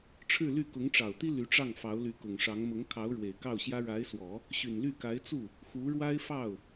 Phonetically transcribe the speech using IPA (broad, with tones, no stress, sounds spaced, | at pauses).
ʈ͡ʂʰ ɻ̩˥˧ l y˥˩ k ʊ˧˥ ŋ ʈ͡ʂ ɑ˨˩ ʊ̯ t̪ i˥ l y˧˥ ʈ͡ʂ ɑ˥˩ ŋ f ɑ˧˥ ʊ̯ l y˧˥ k ʊ˨˩ ŋ ʂ ɑ˧˥ ŋ m ʊ˧˥ ŋ kʰ ɑ˧˥ ʊ̯ ɻ w e˨˩ ɪ̯ k ɑ˥˩ ʊ̯ ɕ j ä˥ ɻ a˧˥ ɪ̯ s w ɔ˨˩˦ | ɕ y˨˩ n l y˥˩ k a˧˥ ɪ̯ t͡s u˥˩ | x u˧˥ ɻ w a˥ ɪ̯ f ɑ˥˩ ʊ̯